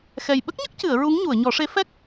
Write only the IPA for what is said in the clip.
x ɛ˨˩ j ɓ ə˦˥ k̚ ɲ ə˦˥ k̚ c ɨ˨˩˨ ə̯ ɹ u˧˥ ŋ ɲ u˨˩˨ ə̯ ɲ ɔ˨˩˦ ʂ e˧˥ f ɛ˦˥ k̚

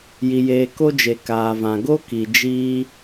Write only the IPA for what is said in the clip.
j i˧ j eː˧ k o˦ d͡ʒ e˨ k aː˨ v ã˨ ɡ o˦ k i˨ d͡ʒ iː˧

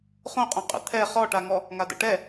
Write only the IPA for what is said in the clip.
χ õ qʼ õ qʼ ə̰ t̪ʰ ɛ χ ɔ ʈ a ŋ ɔ | ŋ a d ə̰ ʈ ɛ

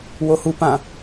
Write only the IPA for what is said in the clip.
w o h u p ã

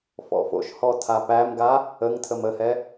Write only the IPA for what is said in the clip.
f ɔ̰ f o̰ ʃ h ɔ tʰ a p æ m ɡ a | ə ŋ tʰ ə m ə h ɛ

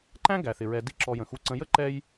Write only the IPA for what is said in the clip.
ǃ æ̃˥ ɡ æ˩ θ ɪ˩ ɹ ɛ˨ d i˦ ǁ ɔ˨ j ə̃˩ x u˨ ǀ ə̃˨ j ə˥ ǃ ɛ˦ j

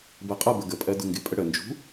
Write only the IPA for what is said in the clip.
b ɜ qʼ ʌ b ə ɡ ə pʼ ɜ d ʊ ŋ ɡ ɪ pʼ ə ɽ ə n d͡ʒ ṳ

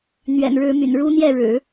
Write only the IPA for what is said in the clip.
n̪ ɥ ɛ̰˨˩ n ɻ ɻ̩˧˥ m y̰˨˩ n ɻ u˥ n̪ j ɛ˥˩ ɻ ɻ̩˨˩˦

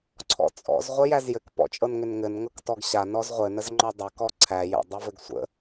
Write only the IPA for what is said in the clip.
ǀʰ ɔ̰ t͡sʼ ɔ̰ z ʁʷ ɘ j æ z j ɘ k p ɔ̰ t͡ʃʼ ɤ n ŋ ʏ n ŋ ɘ n ŋ ɤ k t ɔ ɡ ɕ a n ɔ z ʁʷ ɘ n ə z ŋ͡ǃ ɔ dˤ ɘ k ɔ ǀʰ æ j ə̰ dˤ ɘ v ɘ ɡ sʷ ə̰

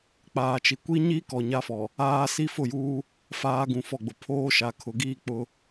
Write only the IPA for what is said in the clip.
k͡p aː˨ t͡ʃ i˨ kʷ i˦ ɲ i˦ k ɔ˨ ɲ a˦ f ɔ˨ | aː˦ s i˦ f ʊ˦˨ j uː˦ | f aː˦ ɡ ũ˨ f ɔ˦˨ ɡ͡b ʊ˨ pʰ oː˦ ʃ a˨ kʰ ʊ˨ ɡ iː˦˨ k͡p ʊ˦

